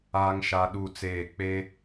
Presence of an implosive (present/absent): present